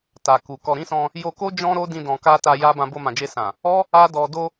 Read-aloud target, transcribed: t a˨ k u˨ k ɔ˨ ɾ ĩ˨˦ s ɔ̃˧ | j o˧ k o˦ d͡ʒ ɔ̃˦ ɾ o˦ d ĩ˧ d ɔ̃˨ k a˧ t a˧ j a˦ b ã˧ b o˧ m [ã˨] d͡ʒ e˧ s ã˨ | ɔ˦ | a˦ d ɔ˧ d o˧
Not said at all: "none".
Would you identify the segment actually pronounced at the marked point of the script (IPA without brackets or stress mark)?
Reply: ã˨